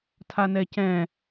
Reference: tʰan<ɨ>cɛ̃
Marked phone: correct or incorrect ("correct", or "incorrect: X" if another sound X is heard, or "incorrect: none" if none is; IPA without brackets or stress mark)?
incorrect: ɛ